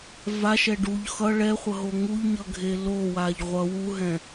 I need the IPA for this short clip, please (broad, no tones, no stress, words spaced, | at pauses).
vaʃɛ ɖuʎ xʌ ɭɛχʷʌɦo ŋuʎɲʌɡʱe lowaʎ ʁʷʌ wuɦɛ̃